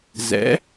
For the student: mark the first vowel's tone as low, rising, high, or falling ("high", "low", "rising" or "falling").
rising